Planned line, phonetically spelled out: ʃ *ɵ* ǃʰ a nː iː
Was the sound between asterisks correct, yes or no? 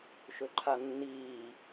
yes